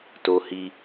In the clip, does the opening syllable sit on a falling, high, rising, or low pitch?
high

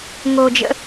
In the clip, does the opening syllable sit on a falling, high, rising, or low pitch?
low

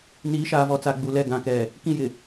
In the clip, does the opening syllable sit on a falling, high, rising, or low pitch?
rising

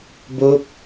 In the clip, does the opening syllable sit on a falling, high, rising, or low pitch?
falling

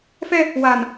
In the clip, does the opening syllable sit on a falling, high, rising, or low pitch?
high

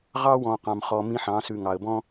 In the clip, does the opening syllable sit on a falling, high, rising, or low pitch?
high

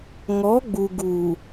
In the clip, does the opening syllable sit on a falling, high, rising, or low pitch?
rising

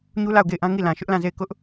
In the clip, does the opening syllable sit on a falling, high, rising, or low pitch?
high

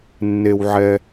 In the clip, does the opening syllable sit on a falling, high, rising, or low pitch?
low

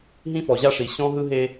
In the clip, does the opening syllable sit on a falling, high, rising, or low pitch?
high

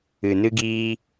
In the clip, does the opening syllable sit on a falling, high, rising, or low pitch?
low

